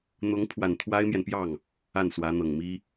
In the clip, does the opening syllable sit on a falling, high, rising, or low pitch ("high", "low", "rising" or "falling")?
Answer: rising